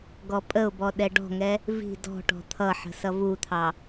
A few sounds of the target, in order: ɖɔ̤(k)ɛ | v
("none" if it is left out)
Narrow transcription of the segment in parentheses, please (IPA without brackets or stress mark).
ŋ